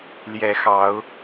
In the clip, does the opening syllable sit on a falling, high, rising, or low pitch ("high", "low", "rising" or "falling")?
rising